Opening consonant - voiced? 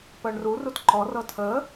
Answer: no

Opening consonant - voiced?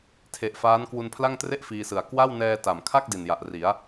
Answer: no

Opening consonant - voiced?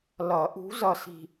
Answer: yes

